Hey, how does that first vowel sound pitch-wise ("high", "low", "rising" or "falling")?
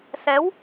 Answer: rising